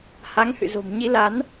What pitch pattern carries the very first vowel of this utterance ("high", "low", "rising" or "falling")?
rising